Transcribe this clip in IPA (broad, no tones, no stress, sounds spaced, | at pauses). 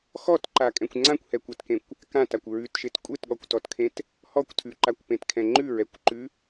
x ɔ t ǃ a kʼ ɛ̃ kʷ ŋ͡ǀ ã kʷ h ɛ kʷ ɛ t k ẽ kʷ | k ã t a kʷ ɹ ʉ t ʃ e t kʷʼ e t ɠ ɔ kʷ t ɔ t kʰ ẽ t | h ɔ kʷ tʰ ʉ ǃ a kʷ p ẽ t kʰ ɛ̃ ŋ͡ǃ ʉ ɹ ɛ kʷ ǃ ʉ